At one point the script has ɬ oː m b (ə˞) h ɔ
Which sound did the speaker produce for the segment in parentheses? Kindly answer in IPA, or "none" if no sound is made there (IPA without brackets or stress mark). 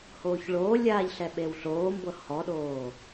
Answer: ɤ